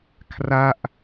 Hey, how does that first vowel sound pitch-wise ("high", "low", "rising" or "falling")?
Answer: falling